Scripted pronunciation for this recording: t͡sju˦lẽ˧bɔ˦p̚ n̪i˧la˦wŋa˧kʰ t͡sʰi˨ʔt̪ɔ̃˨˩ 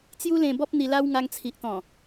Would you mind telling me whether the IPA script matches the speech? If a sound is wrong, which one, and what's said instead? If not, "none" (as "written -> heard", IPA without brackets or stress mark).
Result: kʰ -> ŋ